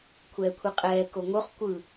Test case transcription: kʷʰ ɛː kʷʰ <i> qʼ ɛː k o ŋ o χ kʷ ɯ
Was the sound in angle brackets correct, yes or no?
yes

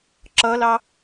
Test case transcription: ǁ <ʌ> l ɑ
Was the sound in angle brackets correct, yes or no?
yes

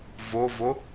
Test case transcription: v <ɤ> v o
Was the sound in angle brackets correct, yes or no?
no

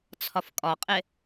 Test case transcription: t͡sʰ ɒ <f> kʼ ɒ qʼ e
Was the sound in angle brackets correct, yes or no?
yes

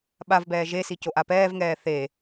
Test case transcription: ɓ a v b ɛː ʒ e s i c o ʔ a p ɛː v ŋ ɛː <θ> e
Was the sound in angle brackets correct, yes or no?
yes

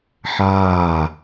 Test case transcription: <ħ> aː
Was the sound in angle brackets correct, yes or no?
yes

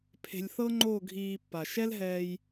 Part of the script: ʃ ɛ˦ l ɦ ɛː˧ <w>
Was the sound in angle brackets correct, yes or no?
no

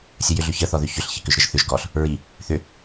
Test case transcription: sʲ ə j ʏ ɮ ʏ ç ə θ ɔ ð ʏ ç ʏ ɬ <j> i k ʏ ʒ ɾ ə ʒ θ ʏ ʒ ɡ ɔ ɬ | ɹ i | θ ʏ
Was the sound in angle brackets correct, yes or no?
no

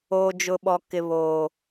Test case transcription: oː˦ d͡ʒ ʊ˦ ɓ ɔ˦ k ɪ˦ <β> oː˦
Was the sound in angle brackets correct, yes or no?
yes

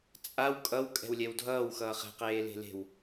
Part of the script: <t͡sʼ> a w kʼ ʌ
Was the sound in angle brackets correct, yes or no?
yes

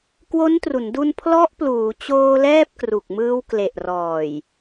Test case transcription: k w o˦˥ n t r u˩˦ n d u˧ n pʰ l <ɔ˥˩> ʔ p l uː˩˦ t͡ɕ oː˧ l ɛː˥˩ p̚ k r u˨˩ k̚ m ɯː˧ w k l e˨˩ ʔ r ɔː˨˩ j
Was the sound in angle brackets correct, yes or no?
no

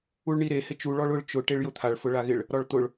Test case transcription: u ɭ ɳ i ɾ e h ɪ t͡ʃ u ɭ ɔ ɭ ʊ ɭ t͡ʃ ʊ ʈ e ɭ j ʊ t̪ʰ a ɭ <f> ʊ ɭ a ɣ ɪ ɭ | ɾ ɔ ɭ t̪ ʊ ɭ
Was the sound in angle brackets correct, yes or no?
yes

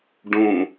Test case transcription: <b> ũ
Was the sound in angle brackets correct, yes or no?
no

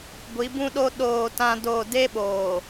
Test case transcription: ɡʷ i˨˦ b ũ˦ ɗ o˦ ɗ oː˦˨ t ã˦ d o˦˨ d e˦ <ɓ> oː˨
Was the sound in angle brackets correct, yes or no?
yes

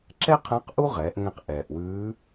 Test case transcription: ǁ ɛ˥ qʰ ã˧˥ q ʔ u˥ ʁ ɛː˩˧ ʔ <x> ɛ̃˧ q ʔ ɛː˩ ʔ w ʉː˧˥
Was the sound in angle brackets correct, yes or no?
no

